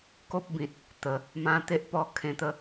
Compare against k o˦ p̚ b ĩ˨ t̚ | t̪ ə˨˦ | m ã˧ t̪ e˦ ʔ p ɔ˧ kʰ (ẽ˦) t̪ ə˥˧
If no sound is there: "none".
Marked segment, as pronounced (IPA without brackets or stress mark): ẽ˧